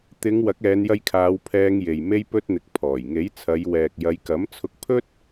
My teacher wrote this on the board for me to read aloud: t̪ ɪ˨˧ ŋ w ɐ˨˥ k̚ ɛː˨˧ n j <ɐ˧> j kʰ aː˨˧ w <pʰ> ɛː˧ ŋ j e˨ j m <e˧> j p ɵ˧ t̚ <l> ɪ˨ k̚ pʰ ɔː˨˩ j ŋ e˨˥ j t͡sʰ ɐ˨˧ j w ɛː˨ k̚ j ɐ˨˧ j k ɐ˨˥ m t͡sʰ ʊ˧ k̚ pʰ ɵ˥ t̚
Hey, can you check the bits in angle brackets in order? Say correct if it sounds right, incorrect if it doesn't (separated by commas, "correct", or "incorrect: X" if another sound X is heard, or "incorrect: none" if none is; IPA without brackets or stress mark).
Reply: correct, correct, correct, incorrect: n̪